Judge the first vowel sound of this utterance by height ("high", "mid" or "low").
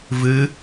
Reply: high